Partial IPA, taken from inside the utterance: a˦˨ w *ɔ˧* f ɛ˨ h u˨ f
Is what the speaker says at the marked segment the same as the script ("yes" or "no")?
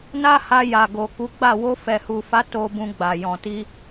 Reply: no